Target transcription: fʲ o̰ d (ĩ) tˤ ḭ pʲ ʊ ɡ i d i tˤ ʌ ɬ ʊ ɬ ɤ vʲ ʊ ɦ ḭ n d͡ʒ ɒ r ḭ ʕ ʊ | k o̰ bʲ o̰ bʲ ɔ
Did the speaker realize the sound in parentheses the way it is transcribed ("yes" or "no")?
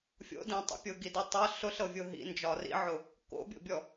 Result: yes